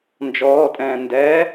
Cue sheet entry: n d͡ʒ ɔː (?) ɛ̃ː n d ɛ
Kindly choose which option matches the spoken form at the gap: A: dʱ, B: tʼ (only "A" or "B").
B